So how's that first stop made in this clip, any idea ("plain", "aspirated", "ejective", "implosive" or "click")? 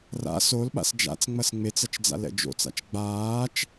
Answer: implosive